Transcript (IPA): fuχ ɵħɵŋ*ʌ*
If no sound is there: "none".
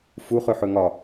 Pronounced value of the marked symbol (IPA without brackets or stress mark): ɒ